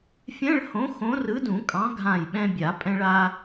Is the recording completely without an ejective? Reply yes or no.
no